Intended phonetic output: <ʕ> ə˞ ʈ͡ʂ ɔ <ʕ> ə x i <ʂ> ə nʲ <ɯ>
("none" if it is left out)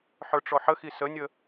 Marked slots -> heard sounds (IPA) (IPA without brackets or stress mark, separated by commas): ħ, ħ, s, ə